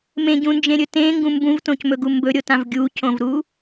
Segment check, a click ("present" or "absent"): absent